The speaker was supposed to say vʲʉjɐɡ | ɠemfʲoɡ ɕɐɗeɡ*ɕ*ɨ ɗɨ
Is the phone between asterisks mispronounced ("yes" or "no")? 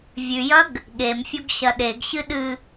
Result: no